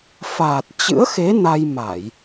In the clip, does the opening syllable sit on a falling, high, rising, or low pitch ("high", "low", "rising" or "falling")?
low